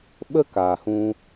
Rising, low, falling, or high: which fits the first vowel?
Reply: high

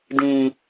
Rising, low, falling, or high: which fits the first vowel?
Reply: low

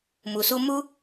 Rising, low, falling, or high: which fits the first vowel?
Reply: low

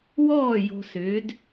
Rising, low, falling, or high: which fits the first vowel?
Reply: falling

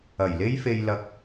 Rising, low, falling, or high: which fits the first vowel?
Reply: low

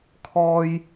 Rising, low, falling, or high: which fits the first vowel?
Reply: high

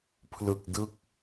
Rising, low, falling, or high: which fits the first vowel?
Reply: low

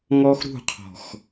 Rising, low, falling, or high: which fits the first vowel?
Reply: high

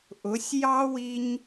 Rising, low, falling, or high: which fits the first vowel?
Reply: rising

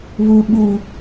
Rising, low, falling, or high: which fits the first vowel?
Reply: low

